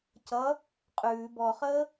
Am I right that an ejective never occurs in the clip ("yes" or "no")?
no